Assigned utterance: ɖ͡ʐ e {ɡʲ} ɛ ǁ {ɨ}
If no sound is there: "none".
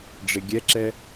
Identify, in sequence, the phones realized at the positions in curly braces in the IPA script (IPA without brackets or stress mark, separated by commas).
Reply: ɡʲ, ɛ